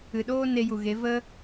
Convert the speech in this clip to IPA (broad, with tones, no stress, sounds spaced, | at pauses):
ɨ˨ ɗ oː˦ n e˧ j u˨ ɣ e˨˦ v ə˦